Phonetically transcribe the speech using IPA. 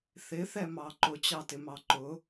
θ ɪ θ ɛ m ɑ ǃ ʊ t͡ɕ ɑ t ɪ m ɑ ǃ ʊ

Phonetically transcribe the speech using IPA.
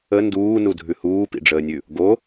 ə n d uː n u dʱ ʉ h uː p ḭ ɖ͡ʐ əː nʲ ʉ | ɡ o

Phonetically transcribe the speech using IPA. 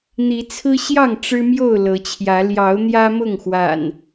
n̪ i˨˦ t͡sʰ ɹ̩˦ ɕ j ɑ˥˨ ŋ ʈ͡ʂ ɻ̩˦ m j o˥˨ ʊ̯ l ɤ˨˦ t͡ɕʰ j ä˨˦ l j ɑ˨˦ ʊ̯ n̪ j ä˦ m ʊ˥˨ ŋ x w a̰˨˩ n

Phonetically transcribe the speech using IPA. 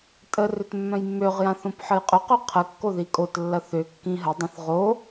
tʼ ə r ʏ t mː œ̃ j mː ø ʁ j ã θ õ p ħ ə j qʼ ʏ q ø qʰ ə kː o ð i kʼ o t lː ɐ θ ʏ kː ĩ ɦ ə dˤ ɐ̃ θ ʁ o

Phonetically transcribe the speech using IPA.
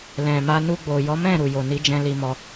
l ɛ̃˨ m a˧ n u˧ ɡ͡b o˨ j ɔ˨˦ m ɛ̃˦˨ ɾ u˨ j o˨ n i˨˦ d͡ʒ ɛ̃˧ l i˧ m ɔ˧

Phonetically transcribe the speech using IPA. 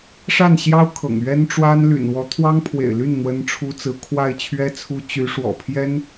ʂ a˥˩ n ɕ j ɑ˥ ʊ̯ kʰ ɤ̰˨˩ ŋ ɥ ɛ˥ n ʈ͡ʂ w a˥ n l y̰˨˩ n w ɔ˧˥ t̪ʰ w ɑ˥ ŋ pʰ w ḛ˨˩ ɪ̯ l y˥˩ n n̪ w ə˥ n ʈ͡ʂʰ u˥ t͡s ɹ̩˥ kʰ w a˥˩ ɪ̯ t͡ɕʰ ɥ ɛ˥ t͡sʰ u˥ t͡ɕ y˧˥ ʂ w ɔ̰˨˩ pʰ j ɛ˥ n

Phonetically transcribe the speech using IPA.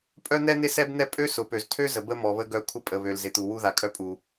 pʼ œ˥ n̪ ɛ˥ n̪ ɪ˥ s ɛ˥ b n̪ ɛ˥ pʼ ø˥ s ʊ˩ p ø˩ z tʰ ø˥ z ə˩ b ə˥ m ɔ˩ β ə˥ ɡ œ˥ kʷʰ ə˥ pʼ ə˩ β ø˩ l z ɪ˩ t̪ u˩ w u˥ ð a˩ kʼ œ˥ pʼ u˩

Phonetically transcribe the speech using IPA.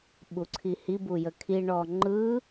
ɓ u ǀʰ i h i b u j ə kʰ i ɳ ɔ ŋ͡ǃ ɯ

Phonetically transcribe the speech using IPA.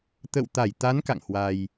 t̪ ə̰˧˨ w t̪ a˧˩ j t̪ a˨˦ n k a̰˧˨ ŋ h w a˧ j

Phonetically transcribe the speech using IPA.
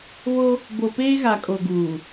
β o˦ | b o˨ p eː˦ ɣ a˨ kʼ o˨ ɡ uː˨

